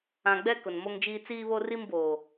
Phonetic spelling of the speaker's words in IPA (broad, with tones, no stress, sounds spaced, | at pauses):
ã˨ ɡ͡b ɛ˦ k ʊ˨ n m o˦ ŋ d͡ʒ iː˦ t͡s iː˦ β o˦ r i˦ m b oː˨